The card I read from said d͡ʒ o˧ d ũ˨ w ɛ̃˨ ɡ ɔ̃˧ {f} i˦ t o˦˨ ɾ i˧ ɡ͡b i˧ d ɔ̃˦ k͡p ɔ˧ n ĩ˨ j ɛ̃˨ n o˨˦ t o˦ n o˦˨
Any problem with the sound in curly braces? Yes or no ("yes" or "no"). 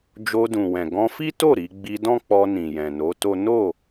no